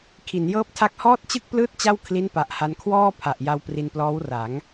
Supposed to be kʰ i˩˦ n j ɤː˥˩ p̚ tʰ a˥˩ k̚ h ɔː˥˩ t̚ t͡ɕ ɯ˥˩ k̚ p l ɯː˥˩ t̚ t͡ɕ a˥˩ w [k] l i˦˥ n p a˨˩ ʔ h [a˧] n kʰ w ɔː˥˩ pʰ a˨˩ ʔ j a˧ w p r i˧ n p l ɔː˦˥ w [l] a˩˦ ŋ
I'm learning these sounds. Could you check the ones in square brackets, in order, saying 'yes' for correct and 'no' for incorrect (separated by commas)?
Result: no, yes, no